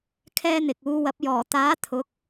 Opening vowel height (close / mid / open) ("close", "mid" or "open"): mid